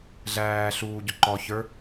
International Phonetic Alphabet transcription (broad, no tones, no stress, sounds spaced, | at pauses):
ɮ æː ɬ uː ɟ ʊ ǃ ɔ ç ə˞